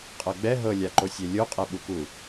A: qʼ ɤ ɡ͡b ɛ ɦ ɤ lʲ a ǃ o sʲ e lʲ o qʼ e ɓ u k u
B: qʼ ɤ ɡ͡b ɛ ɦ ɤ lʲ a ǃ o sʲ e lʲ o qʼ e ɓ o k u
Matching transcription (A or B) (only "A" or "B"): A